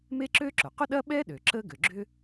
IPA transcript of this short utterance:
m e˥ ǁ ø˥ ǁ ʊ˩ q ʊ˥ ɗ ɐ˥ ɓ ɛ˥ ɗ ø˩ ǁ ə˥ ɡ ø˩ ɡ͡ǁ ʏ˥

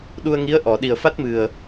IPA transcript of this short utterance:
ɗ u˧ ə̯ ŋ i˧˥ ə̯ ʔ ɔ˨˩˨ ɗ i˨˩ ə̯ f a˦˥ t̚ m ɨ˨˩ ə̯

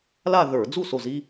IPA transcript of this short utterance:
l a˥˧ ð ə˞˧˩˧ d͡z u˥˩ s o˧˩ z i˧

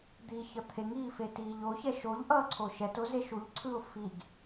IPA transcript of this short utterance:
d̪ iː ç ʌ t̪ʰ e ŋ iː f e t iː ʎ o ç ɛ ʃ o ʎ ʔ ʌː ǀʰ o ʃ ɛ t o z e ʃ u ʎ ǀʰ ɯ ʊ̯ f i ɡ

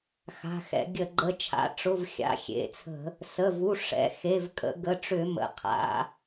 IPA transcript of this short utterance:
x a̤˩˧˩ x ɛ̰˧˩˧ ɡʲ ə˧˩˧ ɡ͡ǃ ə˩˧˩ t͡ʃʰ a̰˩˧˩ ʈ͡ʂ ʊ˩˧˩ v xʲ a̰˩˧˩ xʲ ḛ˩˧˩ t͡sʰ ə̤˧˩˧ | s ə˩˧˩ v u˩˧˩ ʂ ɛ̰˩˧˩ x e˩˧˩ v kʼ ə̰˧˩˧ ɡ ə˩˧˩ ʈ͡ʂ ʏ˧˩˧ m ə̰˩˧˩ qʰ a̰˩˧˩

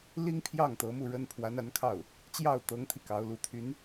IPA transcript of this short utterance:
l i˥ ŋ pʰ j ɑ˥˩ ŋ t̪ ɤ˧˥ m u˥˩ ɻ ə˥ n pʰ w a˧˥ n a˧˥ n kʰ ɑ˥˩ ʊ̯ | t͡ɕ j ɑ˥˩ ʊ̯ t̪ ɤ˧˥ ŋ t̪ʰ i˧ k ɑ˧˥ ʊ̯ l u˧˥ t̪ʰ y˧˥ n

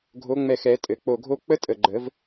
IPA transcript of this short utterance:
ɡʱ o˨˦ ŋ͡m ɛ˧˩ x ɛ˨˩˦ tʼ ɘ˩˧˩ k͡p o˧˩ ɡʱ o˦˥ k͡p ə˦˥ tʼ ə˩˧˩ ɡ͡ǃ ə˨˩˦ v

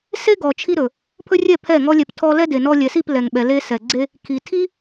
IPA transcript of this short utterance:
s e˦ ɡ ɔ˨ t͡ʃʰ i˦ ɾ ɵ˨ | pʰ ɵ˦ rʲ ɛ˦˨ pʰ ɛ˦˨ ŋ ɔ˦ lʲ ɛ˧ p tʰ ɔ˦ l ɛ˦ d e˨ n ɔ˧ lʲ ɛ˨ s i˦˨ p l ɛ˨ ŋ ɓ ɛ˨ l e˦ s ɛ˨ ɡ͡ǀ e˦ | kʰ i˨ tʰ i˦

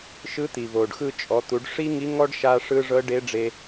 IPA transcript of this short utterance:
ʃ ɯ˧˥ t̪ i˩ v o˩ ɖ x ɯ˧ t͡ʃʼ ɔ˩˧ t̪ u˩˧ ɖ ʂ i˥ ŋ i˧˥ ŋ ɔ˥ ɖ ʃ a˧ ʂ ɯ˧ ʐ ɤ˧˥ ɖ e˧˥ ɖ͡ʐ e˧

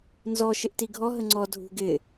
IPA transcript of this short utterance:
n z ɔ ʃ ɪ ʔ t i ɡʱ ɔ ɦ ə ŋ͡ǀ ɔ dʱ ṳ ɡ ɪ

